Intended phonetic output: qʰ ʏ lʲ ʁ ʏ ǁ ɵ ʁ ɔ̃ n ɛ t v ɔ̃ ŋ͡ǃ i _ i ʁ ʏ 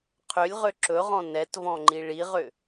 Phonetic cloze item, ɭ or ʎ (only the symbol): ɭ